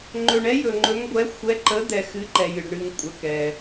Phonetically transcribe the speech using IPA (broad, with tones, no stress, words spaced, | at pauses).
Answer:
ŋ͡ǃɵ˨ɳɛ˨˦ jɵ˨ŋ͡ǃɵ˨˦ŋɡʷɛ˨˦ xʷɛ˨˦ǃə˨˦d̪ɛ˨ xɨ˨˦ǃɛ˨jɨ˨ɖ ɳɨ˨ŋ kʷʼə˨ kɛ˨